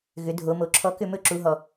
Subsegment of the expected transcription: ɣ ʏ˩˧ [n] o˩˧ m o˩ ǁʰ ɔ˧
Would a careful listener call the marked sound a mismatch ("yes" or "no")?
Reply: yes